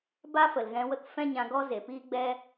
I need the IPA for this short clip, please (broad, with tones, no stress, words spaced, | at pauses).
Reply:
ba˦fə˨lɣɛ̃˧ wə˦kfɛ̃˦ɲã˧ɡɔ˦ ze˨piː˦ɡ͡bɛ˦